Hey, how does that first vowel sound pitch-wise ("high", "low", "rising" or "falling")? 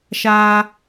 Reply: high